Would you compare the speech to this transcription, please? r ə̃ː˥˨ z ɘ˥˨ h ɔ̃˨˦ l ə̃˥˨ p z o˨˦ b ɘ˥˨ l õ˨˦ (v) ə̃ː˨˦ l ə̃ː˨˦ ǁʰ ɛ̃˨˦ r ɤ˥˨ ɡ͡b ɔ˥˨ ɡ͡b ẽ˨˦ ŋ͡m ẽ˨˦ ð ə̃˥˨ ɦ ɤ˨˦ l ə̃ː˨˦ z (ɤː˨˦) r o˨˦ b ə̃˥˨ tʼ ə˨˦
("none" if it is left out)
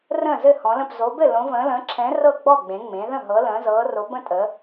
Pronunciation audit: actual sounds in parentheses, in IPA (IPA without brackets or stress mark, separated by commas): v, ɤː˨˦